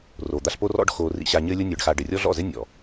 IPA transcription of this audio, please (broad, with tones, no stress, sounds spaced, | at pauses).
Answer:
r o˨ d̪ a˧ ɬ p o˦ r ɔ̰˦ ɖ x oː˧ r ḭ˧ ɕ a˧ ɲ ɘː˧ lʲ o˧ nʲ ə˞˨ ɖ x aː˨ ɖ ɘ˨ rʲ ɔ˦ ɮ ɔ̰˦˨ z ɘ˦ nʲ ɔ̰˨